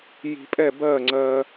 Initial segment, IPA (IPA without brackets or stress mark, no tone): j